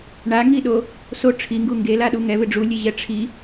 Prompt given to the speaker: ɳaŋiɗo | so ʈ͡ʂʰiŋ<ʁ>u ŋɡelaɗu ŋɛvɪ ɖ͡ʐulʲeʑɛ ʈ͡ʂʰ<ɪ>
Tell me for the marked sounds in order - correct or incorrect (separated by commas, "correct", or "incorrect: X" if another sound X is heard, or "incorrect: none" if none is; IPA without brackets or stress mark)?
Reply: incorrect: ɡ, incorrect: i